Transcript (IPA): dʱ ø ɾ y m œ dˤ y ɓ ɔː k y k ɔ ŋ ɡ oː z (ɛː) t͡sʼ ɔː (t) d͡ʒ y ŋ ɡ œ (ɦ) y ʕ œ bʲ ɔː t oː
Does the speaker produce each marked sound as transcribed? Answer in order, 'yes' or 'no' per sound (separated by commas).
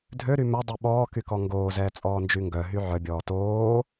yes, no, yes